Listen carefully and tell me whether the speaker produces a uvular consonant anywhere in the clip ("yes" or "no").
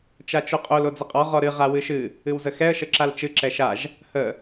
yes